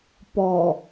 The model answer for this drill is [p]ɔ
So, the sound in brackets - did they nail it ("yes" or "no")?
yes